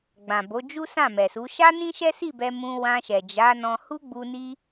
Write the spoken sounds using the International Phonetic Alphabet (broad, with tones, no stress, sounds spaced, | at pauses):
ɡ͡b ã˨ b o˨˦ d͡ʒ u˦ s ã˦˨ m ɛ˨ s u˨˦ ʃ a˦ n ĩ˦ ʃ ɛ˦ s i˦˨ b ɛ˧ m ũ˧ w ã˧ ʃ ɛ˨ d͡ʒ a˨˦ n ɔ̃˧ h u˦ ɡ͡b u˧ n i˦